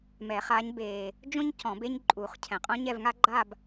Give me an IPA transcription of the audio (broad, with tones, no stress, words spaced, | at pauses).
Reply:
mɛ˨˩˦χa˨˦ɲ beː˨ | d͡ʒõ˥ɲcɔ̃˨˩˦b e˥ɲ ǃʼu˨˩˦χ cʰɛ̃˨qʼõ˥ ɲɛ˥˧vŋa˥ɡ͡ǃa˥˧b